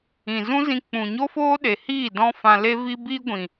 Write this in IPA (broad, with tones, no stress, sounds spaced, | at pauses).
ĩ˨ z ũ˦ z ĩ˧ k͡p ũ˨ ɲ o˦ f oː˦ ɗ e˨ h iː˦˨ d ɔ̃˦ f ã˧ l e˦ v i˧ b i˧ ɡʷ ĩ˨